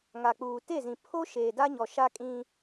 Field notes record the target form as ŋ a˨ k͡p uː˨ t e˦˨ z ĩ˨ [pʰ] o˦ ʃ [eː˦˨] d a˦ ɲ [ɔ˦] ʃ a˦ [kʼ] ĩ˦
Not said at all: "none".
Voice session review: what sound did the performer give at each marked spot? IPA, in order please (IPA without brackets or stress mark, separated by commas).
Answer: pʰ, eː˨, ɔ˨, kʼ